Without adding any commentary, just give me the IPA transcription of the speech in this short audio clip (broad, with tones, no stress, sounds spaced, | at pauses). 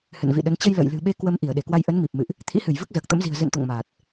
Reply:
h ɨ̰˧˨ n v ḭ˧˨ ɗ ə˨˦ n t͡ɕ ə˧ j l ə̰ː˧˨ j l ɨ̤˨˩ ɓ e˧ k w ə˧ m ʔ i˧˩ ə̯ ɗ e˧˩ k w a˧ j ʔ ə˨˦ n m i˨˩ p̚ m ɨ̰˧˨ ʔ | t̪ʰ ḭ˧˥ h ɨ˧˩ j v ɨ˦˥ k̚ z əː˨˩ k̚ t̪ ə̰˧˥ m z i̤˨˩ ə̯ z ɨ̰˧˨ n t̪ o̰˧˨ ŋ m aː˨˩ t̚